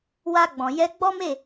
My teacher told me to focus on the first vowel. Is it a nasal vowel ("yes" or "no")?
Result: no